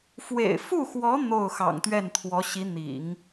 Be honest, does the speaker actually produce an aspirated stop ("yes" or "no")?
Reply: yes